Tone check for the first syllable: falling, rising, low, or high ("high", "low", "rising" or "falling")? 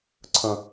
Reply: low